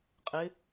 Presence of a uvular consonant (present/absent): present